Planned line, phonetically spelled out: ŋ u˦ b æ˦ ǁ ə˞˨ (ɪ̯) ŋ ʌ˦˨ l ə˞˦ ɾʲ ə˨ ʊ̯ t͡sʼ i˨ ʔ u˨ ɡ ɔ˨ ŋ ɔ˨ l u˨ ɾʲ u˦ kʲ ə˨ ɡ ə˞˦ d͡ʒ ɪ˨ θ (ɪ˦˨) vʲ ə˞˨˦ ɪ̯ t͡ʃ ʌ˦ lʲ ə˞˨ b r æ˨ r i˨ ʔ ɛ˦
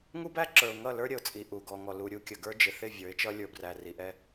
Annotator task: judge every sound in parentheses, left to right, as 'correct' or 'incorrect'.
incorrect: ʊ̯, correct

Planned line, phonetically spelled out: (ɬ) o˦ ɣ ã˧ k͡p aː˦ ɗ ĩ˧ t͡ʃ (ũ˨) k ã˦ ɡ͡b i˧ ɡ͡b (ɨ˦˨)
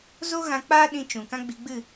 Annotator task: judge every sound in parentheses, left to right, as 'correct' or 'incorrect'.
incorrect: z, correct, correct

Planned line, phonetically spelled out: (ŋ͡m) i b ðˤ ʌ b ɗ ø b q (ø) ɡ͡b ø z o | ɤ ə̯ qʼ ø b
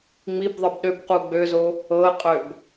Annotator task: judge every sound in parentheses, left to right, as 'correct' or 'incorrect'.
correct, incorrect: u

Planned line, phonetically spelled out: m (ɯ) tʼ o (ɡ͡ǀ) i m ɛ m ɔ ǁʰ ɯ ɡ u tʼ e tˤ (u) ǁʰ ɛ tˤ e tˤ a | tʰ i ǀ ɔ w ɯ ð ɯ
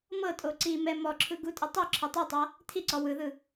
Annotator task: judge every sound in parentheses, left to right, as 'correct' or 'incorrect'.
incorrect: ɤ, incorrect: ǀ, incorrect: o

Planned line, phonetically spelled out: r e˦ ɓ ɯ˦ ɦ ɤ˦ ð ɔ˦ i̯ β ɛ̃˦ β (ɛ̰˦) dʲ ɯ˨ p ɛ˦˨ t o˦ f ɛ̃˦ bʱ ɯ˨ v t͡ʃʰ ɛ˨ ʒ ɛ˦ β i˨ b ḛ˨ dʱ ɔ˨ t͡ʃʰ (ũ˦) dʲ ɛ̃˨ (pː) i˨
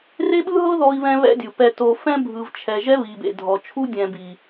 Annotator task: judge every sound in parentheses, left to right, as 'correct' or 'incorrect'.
correct, incorrect: u˦, incorrect: b

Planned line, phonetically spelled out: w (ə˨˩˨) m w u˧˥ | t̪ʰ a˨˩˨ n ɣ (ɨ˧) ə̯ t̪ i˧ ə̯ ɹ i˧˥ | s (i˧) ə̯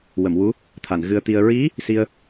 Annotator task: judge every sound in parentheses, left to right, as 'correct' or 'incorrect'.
correct, correct, correct

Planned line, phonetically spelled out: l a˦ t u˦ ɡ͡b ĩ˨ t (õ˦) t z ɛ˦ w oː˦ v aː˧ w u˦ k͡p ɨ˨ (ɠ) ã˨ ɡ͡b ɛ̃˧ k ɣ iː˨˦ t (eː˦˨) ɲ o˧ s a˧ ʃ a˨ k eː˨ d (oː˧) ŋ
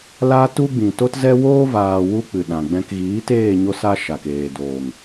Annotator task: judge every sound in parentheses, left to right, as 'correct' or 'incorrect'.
incorrect: o˦, incorrect: ɗ, correct, incorrect: oː˨

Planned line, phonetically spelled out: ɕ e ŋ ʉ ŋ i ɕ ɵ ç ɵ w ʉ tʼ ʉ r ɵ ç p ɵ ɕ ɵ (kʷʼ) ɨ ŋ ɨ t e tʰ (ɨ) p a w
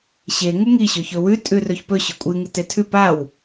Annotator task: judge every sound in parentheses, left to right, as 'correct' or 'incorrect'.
correct, incorrect: ʉ

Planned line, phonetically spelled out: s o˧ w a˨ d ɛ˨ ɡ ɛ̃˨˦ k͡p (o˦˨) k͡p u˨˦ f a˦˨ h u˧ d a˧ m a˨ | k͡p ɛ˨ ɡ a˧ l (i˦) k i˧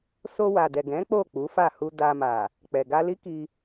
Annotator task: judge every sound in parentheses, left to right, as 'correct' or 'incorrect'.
correct, correct

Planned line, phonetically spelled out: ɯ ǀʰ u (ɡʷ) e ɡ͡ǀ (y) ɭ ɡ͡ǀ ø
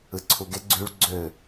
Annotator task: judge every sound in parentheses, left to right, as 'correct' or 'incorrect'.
incorrect: ɡ, correct

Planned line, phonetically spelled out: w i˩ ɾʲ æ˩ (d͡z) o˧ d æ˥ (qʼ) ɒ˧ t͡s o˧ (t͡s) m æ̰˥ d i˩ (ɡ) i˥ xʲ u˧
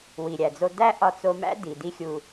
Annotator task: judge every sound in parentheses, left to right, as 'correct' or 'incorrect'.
correct, incorrect: ʔ, incorrect: none, incorrect: d

